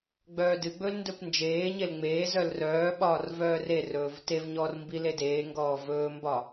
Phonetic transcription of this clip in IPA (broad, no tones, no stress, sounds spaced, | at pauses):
ɡ͡b œː d ɨ ɡ͡b ɵ l n d ɵ p n d͡ʒ eː ɲ e l ŋ͡m eː z œ l r œː ɓ ɒː r v œː r e r ɵː v t e v ɲ ɔː r m b i l e d eː ŋ ɡ ɔː v ɵː m b ɒ